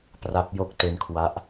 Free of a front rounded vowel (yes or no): yes